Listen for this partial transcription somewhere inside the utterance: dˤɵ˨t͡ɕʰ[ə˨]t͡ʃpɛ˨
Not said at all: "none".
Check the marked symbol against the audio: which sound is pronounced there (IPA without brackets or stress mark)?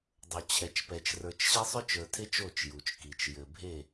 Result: ɛ˨